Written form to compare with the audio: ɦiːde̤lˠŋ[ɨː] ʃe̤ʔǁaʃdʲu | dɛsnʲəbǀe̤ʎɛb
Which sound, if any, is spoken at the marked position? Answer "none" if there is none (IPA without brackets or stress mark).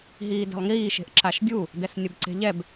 iː